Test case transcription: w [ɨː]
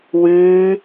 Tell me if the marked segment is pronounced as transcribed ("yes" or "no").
yes